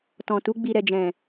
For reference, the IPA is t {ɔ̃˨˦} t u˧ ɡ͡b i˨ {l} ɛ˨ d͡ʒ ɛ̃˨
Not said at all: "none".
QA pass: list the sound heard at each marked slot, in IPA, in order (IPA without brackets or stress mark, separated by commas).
ɔ̃˨, ɾ